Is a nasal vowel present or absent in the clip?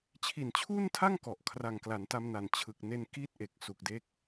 absent